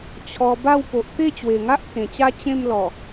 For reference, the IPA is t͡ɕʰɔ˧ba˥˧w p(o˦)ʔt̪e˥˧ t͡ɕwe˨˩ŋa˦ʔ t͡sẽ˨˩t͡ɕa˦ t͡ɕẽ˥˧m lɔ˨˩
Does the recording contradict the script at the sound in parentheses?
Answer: yes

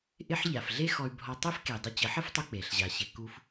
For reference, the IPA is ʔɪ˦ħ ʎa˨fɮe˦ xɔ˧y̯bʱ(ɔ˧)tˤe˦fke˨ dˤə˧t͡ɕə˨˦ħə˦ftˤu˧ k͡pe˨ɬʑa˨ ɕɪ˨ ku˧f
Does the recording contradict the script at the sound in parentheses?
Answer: no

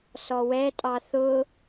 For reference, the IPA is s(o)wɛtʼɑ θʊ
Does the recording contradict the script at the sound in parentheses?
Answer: yes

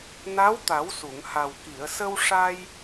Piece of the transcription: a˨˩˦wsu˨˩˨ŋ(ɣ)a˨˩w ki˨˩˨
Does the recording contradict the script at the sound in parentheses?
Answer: yes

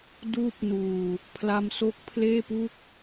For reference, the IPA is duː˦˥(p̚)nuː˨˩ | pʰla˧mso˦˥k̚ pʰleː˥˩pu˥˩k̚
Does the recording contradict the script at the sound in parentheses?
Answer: no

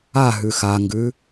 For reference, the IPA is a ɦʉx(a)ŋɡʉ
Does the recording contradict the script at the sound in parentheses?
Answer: no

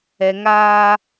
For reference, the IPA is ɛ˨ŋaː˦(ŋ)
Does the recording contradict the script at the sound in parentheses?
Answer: yes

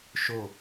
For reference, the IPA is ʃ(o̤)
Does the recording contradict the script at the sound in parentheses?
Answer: yes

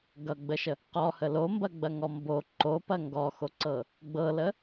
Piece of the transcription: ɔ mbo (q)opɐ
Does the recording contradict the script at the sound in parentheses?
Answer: yes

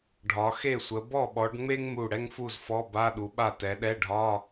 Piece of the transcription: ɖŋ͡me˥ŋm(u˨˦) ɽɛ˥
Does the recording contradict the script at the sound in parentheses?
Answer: yes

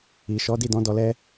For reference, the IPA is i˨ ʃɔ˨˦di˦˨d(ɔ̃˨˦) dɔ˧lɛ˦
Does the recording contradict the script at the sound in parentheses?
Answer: no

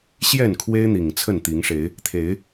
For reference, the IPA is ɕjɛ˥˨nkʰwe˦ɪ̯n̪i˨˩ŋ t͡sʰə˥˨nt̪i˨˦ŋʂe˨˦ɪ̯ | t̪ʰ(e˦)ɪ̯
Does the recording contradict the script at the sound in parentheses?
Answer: yes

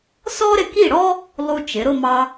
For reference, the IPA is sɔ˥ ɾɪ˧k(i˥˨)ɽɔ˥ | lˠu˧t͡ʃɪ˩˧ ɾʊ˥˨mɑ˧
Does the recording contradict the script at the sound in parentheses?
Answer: no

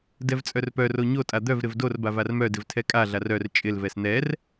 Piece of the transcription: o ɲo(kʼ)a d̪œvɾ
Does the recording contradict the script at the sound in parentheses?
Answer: yes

